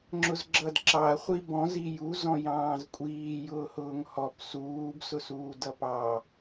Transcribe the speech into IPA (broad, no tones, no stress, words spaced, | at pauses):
ŋ͡ǁʊzɡ͡ǁʌdǁɑɐ̯ χʷibɔ̃z iju zɔ̃jɑ̃ːzkʷʼiː jʊːhʊːŋhɔp suːb sʊsuːdʌpɑ